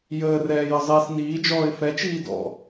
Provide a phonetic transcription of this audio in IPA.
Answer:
j əː r ɛː j ə zˤ iː s n iː d͡ʒ ɔː ɪ̯ f ɛ t͡ʃ iː d ɔ̰

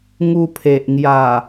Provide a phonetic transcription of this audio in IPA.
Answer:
ŋ u˧ pʰ e˨ ʔ ŋ j a˨˩

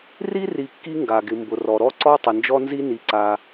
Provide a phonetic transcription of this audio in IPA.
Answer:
r i˥ r i˧ kː i˥ ŋ ɡ a˩ ɡ ɪ˩ m b ʊ˩ r ɔ˩ ɾ ɔ˥ ǀ ɔ˥ tˤ ɪ˩ n d͡ʒ ɔ˥ n z i˥ n i˩ ǀ a˩

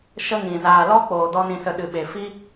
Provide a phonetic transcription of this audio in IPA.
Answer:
ʃ ə˦ ŋ ĩ˨ z aː˨ l ɔ˦ k͡p oː˨ d ɔ˧ n ĩ˨ s ə˨ ɗ ɨ˨ ɓ e˨ f i˦

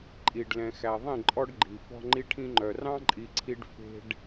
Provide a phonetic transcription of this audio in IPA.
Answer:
ǃʼ i˨ ɖ l ɛ̃˨ x æ˨ ðˤ ĩ˦˨ ǃʼ ɔ˦ ɖ ɡ͡ǃ i˨ f ɔ̤˦ ŋ͡ǃ i˦ ʈʰ ĩ˦ ŋ͡ǃ œ˨ r ɑ̃˦ ǃʼ i˨ ǀʰ i˨ ɖ f e̤˨ ɖ

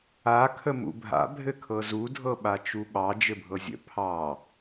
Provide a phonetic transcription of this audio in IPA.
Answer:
a kʰ ə m ṵ bʱ a̰ bʱ ɘ kʰ ɤ z u dʱ ɤ ɓ a t͡ʃ u ɓ ɑ d͡ʒ ɘ bʱ ɤ zʲ ə̰ pʰ ɑ

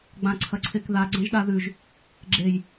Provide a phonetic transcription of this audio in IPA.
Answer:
ɡ͡b ã ǀʰ ɐ ǀʰ e k ð a ɡ͡ǀ ɐ̃ ʒ ɗ a ð ʉ ʒ | ɡ͡ǁ e j

